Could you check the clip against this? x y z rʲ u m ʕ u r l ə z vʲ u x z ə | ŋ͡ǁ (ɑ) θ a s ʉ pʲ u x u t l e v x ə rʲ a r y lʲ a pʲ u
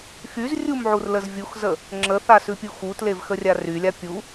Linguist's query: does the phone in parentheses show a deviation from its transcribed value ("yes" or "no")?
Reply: yes